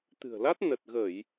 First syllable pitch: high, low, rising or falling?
low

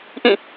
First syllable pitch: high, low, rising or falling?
falling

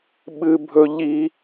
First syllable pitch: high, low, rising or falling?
high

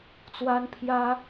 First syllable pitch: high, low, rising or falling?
high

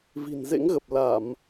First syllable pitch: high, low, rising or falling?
low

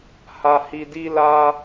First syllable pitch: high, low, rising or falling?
high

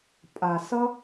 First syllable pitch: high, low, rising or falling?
low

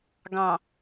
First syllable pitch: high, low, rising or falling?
low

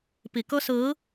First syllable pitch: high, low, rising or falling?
low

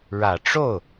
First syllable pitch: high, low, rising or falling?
low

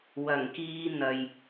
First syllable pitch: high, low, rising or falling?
low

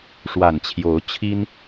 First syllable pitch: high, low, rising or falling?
low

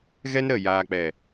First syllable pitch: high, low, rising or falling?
high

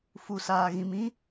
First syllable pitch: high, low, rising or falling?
low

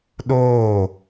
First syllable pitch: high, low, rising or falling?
falling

